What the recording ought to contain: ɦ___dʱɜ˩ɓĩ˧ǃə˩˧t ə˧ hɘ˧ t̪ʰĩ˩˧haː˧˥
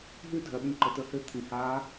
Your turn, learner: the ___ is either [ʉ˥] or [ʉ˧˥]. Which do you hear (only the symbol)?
ʉ˥